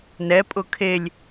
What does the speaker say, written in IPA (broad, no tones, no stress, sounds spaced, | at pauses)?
n ɛ pʼ ʊ kʰ e lʲ